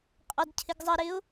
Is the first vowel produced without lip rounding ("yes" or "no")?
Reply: no